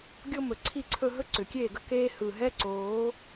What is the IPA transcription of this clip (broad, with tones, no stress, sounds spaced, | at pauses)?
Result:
ɡʲ o˦ m ɵ˨ ǀʰ i˦˨ ǀʰ ɵ˧ ɦ ɵ˦ ǀ ʏ˨ kʲ eː˦˨ ɡ ə˦ k eː˦ h ɯ˨ ɦ ɛ˦ ǀ oː˨˦